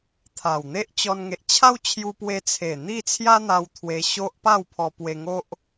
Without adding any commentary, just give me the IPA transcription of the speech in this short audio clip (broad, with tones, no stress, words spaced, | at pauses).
t̪ʰa˨˩wn̪e˦ʔt͡ɕɔ˧n ŋe˨ʔt͡ɕʰa˦wt͡ɕʰju˧pwe˧ t͡sʰe˨˩ n̪i˥˧t͡sʰja˦n̪a˧w t̪ʰwe˧ɕo˦ʔ pa˥˧wpʰɔ˧pwe˧ŋo˦ʔ